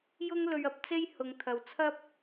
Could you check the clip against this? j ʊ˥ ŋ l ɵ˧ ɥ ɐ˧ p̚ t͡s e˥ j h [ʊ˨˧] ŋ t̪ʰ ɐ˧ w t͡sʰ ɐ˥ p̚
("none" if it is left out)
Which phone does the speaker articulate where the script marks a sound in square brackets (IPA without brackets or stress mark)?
ʊ˨˧